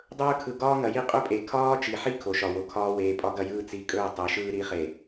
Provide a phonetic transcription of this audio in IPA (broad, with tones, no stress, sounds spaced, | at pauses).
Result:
dˤ ɵː˦ kʰ ɯ˨ ɡ ɒː˦ ŋ ɐ˨ j i˦ qʼ ɵ˦ pʼ e˨ kʰ ɒː˦ t͡ʃ i˨ ħ i˦ kʰ o˨ ʃ ɒ˨ w o˨ kʰ ɒː˦ w eː˨ pʼ ɒ˦ ɡ ɐ˦ j ɯː˦ t͡s i˨ kʼ ɵː˦˨ tˤ e˨˦ ʃ ɯː˦ ɾ i˨˦ χ e˨